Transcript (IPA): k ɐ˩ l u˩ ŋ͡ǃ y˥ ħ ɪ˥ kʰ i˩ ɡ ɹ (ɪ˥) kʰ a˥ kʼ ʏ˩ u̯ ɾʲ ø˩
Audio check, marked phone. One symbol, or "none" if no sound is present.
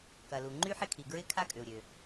ɪ˥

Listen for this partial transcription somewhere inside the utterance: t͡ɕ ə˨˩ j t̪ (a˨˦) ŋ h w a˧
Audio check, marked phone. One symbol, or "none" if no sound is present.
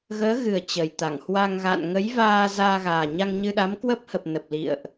a˧˩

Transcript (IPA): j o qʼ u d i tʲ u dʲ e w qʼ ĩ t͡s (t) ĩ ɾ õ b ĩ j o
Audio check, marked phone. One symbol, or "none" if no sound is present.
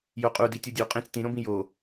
t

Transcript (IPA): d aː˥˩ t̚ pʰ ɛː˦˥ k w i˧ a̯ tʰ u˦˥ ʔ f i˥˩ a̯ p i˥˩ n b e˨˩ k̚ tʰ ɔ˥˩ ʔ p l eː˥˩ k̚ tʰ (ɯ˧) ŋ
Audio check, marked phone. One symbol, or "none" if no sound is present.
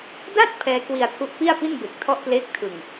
ɯ˧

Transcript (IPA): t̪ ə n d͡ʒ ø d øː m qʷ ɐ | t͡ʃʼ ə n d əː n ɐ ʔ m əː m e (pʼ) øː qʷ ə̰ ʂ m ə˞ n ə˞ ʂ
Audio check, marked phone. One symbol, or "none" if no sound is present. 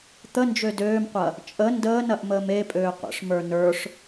pʼ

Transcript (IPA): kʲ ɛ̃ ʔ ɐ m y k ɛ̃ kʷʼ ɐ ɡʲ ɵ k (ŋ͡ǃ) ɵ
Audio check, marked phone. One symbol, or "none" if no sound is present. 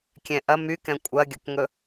ŋ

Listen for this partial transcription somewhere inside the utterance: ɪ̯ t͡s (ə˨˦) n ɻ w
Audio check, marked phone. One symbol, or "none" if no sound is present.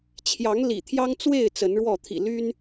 ə˨˦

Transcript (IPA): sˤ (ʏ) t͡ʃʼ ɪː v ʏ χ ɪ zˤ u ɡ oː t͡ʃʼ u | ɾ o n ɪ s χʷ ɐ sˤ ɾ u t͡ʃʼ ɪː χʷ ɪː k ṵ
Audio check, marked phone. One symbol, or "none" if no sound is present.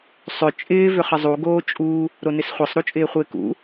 ʏ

